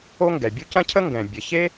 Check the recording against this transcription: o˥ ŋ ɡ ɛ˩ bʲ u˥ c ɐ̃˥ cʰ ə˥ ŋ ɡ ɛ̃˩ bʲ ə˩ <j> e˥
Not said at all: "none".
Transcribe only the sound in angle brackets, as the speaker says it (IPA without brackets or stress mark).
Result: ç